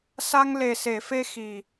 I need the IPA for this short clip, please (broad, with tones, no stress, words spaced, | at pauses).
sa˧ŋle˨˩se˨˩˨fe˧ xi˨˩